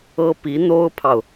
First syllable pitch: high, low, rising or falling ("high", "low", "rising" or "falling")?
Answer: high